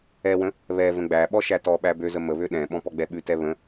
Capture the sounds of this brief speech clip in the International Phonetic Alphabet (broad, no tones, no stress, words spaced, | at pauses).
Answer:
ɛwə̃ | βɛ və̃ɡ͡bæɓɔ ʃætɔɓæ bøzə məβø ɗɛ̃ɓɔ̃ pɔɡ͡bɛɓʉtɛ βə̃